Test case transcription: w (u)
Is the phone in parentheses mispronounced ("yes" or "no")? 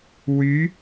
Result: yes